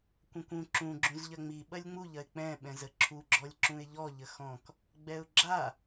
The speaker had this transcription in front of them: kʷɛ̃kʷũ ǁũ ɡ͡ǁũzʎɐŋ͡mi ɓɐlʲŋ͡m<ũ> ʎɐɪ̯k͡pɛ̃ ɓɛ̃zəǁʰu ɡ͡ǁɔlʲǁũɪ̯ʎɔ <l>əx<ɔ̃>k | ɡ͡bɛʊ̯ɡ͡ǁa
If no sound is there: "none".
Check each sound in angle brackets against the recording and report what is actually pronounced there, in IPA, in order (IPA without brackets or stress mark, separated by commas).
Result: u, ʎ, ɔ̃